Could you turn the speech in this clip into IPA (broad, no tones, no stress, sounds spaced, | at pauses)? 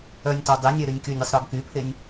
œ nʲ t ɔ dˤ e nʲ ɛ ɾ y nʲ k y nʲ i sˤ ɾ ɔ ɡ k y pʰ e nʲ